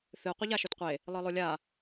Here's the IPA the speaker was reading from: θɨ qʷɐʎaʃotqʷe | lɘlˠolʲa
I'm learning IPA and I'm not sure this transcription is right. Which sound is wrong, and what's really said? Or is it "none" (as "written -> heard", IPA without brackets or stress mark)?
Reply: l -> lˠ